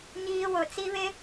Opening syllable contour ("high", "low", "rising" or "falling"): high